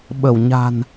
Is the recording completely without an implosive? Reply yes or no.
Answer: no